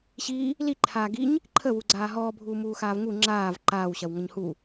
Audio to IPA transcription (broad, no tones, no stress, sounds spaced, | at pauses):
ɕ iː | l i ǃʰ aː ɡ i ɲ | ǃʰ ə w u ɡ͡ǀ aː ɦ ɔː bʱ uː m uː x aː v ŋ u ŋ͡ǁ aː v ǃ aː w ɕ ɐ w ŋ ɐ ɲ h u